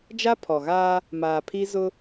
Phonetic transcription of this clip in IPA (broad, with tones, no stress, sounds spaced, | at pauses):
d͡ʒ a˦ pʰ ɔ˨ ɣ aː˦ | m aː˨ pʰ i˦ z ʊ˦